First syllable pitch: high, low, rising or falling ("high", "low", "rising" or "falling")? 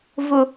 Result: high